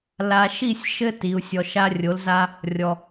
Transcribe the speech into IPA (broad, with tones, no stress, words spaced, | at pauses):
la˨ʃi˦˨sʲʃɘ˦ ti˨˦u̯ sʲɔ˨ʃa˦rʲo˨˦lza˦ | rʲɔ˨